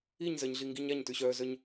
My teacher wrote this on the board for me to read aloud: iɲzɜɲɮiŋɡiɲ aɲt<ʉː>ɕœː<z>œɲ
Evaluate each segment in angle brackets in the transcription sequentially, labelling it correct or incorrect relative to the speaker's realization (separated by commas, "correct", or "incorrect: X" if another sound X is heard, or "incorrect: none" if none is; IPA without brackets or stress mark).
incorrect: ʉ, correct